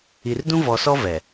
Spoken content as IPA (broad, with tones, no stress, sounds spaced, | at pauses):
i˨ r d ũ˦ v ɔ˨ s ɔ˦ v ɛ˨